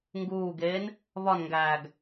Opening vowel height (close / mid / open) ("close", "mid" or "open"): close